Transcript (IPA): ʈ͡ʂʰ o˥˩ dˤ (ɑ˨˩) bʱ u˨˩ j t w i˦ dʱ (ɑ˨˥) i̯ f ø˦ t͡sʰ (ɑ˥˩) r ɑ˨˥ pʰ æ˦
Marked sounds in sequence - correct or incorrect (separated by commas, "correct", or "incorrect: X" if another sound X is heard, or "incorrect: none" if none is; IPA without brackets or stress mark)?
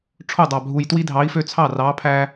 correct, correct, correct